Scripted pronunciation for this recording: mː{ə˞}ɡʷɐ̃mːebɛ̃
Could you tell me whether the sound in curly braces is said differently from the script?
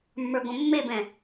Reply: no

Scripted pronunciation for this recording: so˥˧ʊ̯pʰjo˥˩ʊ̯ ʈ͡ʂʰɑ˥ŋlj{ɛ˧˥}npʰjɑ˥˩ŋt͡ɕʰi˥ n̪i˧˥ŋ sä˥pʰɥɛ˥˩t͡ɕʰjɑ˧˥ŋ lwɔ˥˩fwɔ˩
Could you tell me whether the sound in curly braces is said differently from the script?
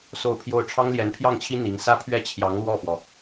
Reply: no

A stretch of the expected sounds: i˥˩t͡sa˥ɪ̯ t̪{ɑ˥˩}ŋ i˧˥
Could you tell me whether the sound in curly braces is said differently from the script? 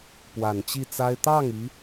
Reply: no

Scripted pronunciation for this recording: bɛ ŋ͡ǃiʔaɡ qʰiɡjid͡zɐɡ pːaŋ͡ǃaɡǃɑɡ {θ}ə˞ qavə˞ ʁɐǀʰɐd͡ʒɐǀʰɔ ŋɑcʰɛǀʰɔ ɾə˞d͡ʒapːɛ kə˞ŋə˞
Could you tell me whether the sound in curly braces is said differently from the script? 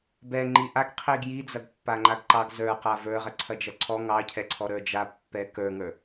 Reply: yes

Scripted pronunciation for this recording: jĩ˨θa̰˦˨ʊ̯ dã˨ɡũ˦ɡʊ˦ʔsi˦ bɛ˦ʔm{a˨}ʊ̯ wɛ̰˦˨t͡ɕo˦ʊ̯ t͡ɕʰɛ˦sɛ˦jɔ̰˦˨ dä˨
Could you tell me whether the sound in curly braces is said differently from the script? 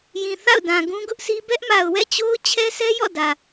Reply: no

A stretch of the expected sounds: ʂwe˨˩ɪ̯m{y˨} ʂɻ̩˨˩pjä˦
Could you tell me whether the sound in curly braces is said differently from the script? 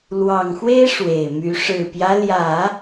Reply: yes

